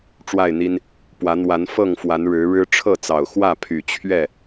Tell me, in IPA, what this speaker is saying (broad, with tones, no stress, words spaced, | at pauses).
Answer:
ʈ͡ʂwa˥˨ɪ̯n̪i˦n | pwä˨˦ n̪wa˨˦nfɤ˥˨ŋfwa˨˦n ɻɻ̩˨˦ɻɻ̩˦ ʈ͡ʂʰɤ˥˨t͡sɑ˨˩ʊ̯xwä˥˨ pʰy˨˩t͡ɕʰɥɛ˥˨